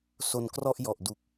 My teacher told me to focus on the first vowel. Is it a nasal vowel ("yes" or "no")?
no